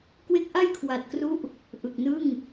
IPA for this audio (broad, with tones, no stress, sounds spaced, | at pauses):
k w e˦˥ k̚ ʔ a˥˩ j kʰ w a˨˩ t̚ k r u˦˥ ʔ | ʔ ɯ˨˩ k̚ n ɯ˥˩ ŋ